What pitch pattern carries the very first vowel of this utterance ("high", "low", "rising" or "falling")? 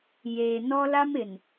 low